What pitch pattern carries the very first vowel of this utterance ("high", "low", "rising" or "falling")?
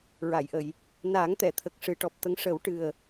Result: low